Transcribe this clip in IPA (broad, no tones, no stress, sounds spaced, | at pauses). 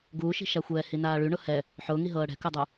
ɡ uː ʃ i̤ ʃ a xʷ ɛː h i n aː ɭ y ɳ ʊ h ɛ | ħ ʊː ŋ i ɦ ɤː ɽ ɛ̤ k ʊ dˤ u